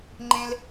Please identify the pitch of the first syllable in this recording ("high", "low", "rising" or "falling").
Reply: high